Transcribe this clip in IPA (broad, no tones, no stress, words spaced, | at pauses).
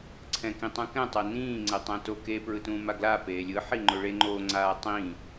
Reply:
ǀʰɛ̃kĩtˤũkɛ̃ tˤonĩː ŋ͡ǀɛtˤɛ̃to ke pɹɯtũːmaɡla peːlʲɯ ħiŋ͡ǃoɭe ŋ͡ǃo ŋ͡ǀaːtˤĩ